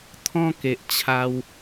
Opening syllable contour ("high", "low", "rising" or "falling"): high